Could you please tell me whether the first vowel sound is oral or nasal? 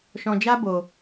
nasal